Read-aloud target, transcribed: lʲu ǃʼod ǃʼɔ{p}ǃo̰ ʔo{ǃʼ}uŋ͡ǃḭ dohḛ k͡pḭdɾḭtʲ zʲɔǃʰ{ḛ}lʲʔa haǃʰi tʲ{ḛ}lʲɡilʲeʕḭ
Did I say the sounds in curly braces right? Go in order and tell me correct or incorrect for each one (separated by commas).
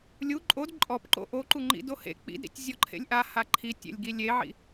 correct, incorrect, correct, correct